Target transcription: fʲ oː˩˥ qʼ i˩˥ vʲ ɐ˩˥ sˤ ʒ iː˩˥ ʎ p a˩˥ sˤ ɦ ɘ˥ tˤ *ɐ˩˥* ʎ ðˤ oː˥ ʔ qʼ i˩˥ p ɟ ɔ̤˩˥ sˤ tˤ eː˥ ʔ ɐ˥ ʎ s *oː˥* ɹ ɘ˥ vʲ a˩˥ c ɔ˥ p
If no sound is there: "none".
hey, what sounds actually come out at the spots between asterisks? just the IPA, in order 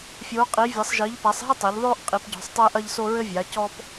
ɐ˩˥, o˥

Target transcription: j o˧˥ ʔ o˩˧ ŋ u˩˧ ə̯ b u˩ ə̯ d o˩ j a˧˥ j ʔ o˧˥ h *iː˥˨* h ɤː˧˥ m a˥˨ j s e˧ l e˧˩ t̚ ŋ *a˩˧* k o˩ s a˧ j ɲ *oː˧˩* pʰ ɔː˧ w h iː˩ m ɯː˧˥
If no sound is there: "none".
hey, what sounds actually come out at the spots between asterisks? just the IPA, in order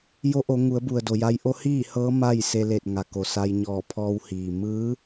iː˥˨, a˩, ɔː˧˩

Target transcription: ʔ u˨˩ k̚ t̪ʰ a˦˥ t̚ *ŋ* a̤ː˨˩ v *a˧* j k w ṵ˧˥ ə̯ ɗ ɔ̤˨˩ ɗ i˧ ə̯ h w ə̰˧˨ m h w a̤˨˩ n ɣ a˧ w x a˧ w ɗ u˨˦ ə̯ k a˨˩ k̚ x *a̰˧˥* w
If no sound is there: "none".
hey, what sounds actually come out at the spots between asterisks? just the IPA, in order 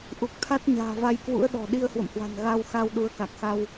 ɲ, a˧, a˧

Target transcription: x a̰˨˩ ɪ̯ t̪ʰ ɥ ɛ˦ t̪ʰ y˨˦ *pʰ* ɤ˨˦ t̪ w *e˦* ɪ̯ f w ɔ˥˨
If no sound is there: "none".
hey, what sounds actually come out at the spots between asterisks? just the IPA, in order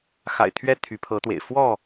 pʰ, ḛ˨˩

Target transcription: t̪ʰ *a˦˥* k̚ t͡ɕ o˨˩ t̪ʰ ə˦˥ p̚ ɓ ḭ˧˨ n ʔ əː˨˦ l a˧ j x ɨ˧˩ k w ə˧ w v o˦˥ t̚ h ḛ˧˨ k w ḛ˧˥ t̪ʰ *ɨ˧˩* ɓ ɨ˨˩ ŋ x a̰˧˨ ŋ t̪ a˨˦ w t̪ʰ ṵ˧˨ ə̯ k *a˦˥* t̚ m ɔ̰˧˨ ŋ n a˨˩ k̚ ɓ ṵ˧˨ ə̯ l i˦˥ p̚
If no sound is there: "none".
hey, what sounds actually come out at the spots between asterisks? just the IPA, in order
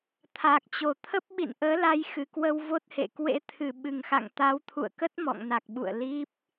a˨˩, ɨ˨˩, ə˦˥

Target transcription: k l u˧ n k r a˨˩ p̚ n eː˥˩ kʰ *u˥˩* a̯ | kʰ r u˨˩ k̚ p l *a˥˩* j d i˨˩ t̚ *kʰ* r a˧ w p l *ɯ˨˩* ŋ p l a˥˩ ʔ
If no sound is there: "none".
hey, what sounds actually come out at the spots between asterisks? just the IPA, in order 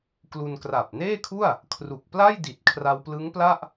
u˥˩, a˥˩, kʰ, ɯ˦˥

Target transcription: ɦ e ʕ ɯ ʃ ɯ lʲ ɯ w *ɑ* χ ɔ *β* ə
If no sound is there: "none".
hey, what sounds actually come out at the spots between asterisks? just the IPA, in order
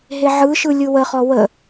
ə, w

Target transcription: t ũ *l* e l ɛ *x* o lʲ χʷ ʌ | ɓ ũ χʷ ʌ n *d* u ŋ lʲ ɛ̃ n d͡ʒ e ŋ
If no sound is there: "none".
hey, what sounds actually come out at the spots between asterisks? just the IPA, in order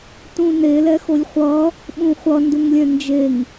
n, x, d

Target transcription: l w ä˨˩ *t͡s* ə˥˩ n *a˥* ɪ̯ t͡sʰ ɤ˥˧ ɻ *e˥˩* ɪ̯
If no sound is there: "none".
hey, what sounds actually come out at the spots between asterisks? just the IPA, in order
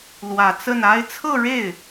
t͡s, a˥, e˥˩

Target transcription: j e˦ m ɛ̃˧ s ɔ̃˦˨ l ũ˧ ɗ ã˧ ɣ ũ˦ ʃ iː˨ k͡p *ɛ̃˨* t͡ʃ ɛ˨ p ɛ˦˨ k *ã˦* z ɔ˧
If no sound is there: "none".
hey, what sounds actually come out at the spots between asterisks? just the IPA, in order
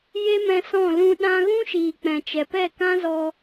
ɛ̃˨, ã˦

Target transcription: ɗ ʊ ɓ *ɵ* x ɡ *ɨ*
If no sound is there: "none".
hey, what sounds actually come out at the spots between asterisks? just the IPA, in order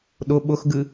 ʊ, ɨ

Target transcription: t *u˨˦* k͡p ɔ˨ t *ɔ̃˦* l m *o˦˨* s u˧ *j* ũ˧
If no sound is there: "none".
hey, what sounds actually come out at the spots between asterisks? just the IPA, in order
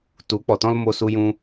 u˨˦, ɔ̃˦, o˧, j

